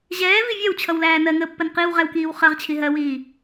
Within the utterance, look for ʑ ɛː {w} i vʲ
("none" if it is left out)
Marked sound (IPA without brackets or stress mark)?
v